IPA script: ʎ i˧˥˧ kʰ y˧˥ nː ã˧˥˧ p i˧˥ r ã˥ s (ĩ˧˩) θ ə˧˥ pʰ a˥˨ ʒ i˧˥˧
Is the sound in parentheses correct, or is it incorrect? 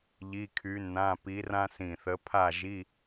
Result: correct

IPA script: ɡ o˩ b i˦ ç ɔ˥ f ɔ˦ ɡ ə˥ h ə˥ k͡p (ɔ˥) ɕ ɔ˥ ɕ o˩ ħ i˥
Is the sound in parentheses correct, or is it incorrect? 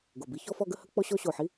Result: correct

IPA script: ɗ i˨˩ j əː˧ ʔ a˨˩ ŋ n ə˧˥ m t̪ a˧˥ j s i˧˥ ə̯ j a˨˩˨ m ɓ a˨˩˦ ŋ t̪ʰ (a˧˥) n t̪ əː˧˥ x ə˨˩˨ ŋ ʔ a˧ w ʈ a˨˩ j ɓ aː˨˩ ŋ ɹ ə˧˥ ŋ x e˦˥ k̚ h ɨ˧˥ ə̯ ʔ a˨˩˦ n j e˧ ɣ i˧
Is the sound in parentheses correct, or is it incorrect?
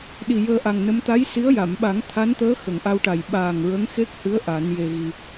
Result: correct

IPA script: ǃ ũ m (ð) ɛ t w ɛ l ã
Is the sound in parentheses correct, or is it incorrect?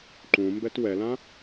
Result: incorrect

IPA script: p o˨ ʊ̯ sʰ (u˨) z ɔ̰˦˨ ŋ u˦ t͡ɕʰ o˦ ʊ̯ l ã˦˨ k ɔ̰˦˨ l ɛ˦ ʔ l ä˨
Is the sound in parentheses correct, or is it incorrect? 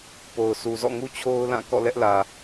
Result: correct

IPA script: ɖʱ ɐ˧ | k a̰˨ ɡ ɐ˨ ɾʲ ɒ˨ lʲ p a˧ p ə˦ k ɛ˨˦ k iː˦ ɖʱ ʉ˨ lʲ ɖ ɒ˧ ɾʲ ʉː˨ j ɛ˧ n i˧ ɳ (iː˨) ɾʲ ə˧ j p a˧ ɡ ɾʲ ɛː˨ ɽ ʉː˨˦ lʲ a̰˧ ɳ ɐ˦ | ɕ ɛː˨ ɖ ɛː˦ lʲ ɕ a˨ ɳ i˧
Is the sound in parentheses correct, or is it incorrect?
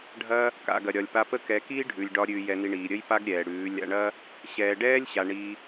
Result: correct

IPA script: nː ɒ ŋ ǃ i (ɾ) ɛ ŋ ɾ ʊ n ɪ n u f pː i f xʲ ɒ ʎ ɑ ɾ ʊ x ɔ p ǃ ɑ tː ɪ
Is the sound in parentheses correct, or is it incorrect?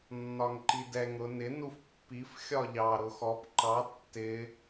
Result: incorrect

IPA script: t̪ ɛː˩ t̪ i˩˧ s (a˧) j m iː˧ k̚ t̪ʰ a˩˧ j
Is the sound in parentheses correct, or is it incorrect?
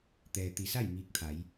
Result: incorrect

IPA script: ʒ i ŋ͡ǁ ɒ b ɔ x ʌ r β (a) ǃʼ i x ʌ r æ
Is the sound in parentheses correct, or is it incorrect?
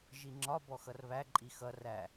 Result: incorrect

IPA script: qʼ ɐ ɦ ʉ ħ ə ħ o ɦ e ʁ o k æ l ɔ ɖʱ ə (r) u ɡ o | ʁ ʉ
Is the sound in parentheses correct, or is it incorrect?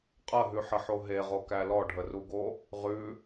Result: correct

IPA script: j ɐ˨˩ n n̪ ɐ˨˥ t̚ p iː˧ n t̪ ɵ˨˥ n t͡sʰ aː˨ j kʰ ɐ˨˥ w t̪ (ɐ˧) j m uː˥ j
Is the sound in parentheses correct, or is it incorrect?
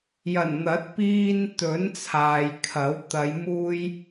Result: incorrect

